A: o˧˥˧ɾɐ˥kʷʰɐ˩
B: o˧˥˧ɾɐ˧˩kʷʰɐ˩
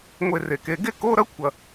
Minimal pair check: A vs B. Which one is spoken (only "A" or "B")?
A